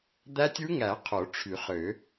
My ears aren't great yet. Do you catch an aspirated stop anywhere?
yes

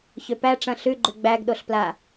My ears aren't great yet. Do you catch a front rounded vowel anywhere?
yes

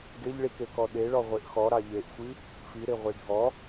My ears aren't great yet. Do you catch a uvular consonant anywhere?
yes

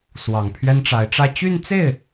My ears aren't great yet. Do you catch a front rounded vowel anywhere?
yes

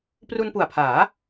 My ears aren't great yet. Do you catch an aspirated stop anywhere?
yes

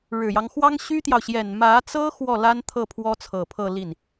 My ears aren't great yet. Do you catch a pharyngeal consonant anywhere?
no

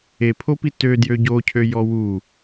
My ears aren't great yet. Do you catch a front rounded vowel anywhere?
yes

